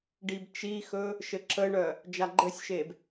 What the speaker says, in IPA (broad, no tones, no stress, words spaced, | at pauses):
ɖibt͡ʃixɵ | ʃɘǁəɳœ | d͡ʒaɡ͡ǃɘsʲʃeb